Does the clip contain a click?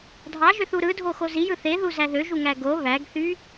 no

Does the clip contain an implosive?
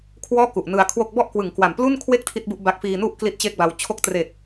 no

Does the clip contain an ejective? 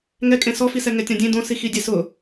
yes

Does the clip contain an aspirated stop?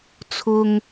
yes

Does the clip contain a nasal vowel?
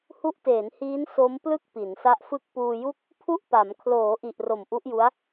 no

